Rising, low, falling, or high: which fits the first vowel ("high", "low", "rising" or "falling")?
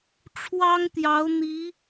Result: high